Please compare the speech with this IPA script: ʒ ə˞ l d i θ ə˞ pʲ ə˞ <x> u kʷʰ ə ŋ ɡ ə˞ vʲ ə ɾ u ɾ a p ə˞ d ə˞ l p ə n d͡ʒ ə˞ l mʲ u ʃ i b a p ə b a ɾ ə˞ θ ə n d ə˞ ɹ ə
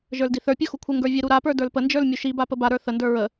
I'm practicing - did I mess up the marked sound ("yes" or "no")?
no